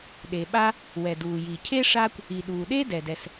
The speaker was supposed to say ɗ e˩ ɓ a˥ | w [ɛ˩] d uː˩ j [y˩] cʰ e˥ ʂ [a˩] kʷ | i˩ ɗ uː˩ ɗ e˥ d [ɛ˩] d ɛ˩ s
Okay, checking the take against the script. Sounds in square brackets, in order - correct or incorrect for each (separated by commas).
correct, incorrect, incorrect, correct